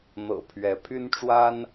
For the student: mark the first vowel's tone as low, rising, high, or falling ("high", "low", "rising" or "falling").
low